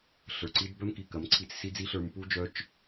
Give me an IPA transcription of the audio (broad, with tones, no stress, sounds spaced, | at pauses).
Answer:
ɬ ə˞˨ ǀ i˦ d b œ˦ m k i˨ k ɐ˨˦ m ǀʰ i˧ t͡s s i˦ d͡z i˦ ɬ ə˞˧ m p u˦ d͡ʒ œ˦ t͡ʃ